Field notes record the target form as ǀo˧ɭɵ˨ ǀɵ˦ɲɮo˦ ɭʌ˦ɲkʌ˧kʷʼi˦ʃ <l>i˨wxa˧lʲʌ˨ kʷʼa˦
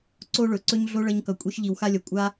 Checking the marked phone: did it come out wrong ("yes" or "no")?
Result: yes